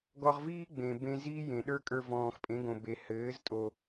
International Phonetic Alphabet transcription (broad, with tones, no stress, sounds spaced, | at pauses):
ɡ ɔ˧ ʁ v iː˦ ɡ͡b ẽ˨ b ẽ˦ z iː˦ j ẽ˨ ɗ ə˞˦ kʼ ə˞˧ v ɔ̃ː˨ x pʼ ẽ˨˦ ɡ õ˨ b e˨ h ɘː˨˦ z tʼ o˨